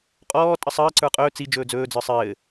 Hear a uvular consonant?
yes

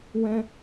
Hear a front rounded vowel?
no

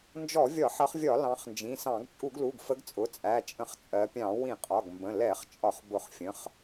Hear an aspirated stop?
no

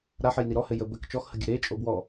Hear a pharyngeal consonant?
yes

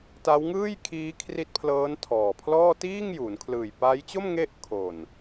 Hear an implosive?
no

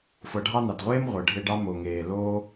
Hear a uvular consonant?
yes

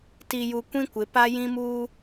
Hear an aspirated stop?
no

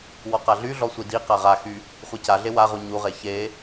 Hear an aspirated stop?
no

